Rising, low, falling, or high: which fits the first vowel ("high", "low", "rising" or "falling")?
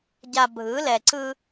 low